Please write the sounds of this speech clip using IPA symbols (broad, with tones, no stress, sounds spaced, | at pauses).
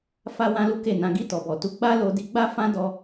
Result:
f a˧ w ã˦ l u˦ k e˦˨ n ã˧ ɡ i˧ t ɔ˨ b ɔ˨ t u˧ ɡ͡b a˦ l o˧ d i˧ ɡ͡b a˦ f ã˦ d ɔ˧